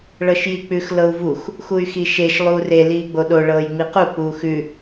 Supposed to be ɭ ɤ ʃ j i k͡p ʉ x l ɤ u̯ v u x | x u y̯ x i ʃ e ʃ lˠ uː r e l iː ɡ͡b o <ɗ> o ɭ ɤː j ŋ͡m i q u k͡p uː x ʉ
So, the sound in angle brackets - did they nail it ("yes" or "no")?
yes